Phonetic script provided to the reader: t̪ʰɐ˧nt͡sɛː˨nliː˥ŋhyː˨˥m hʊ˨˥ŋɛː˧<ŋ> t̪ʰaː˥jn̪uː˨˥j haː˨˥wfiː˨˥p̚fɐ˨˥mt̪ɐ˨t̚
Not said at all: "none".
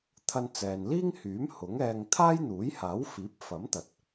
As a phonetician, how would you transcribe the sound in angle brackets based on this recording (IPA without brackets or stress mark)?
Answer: ŋ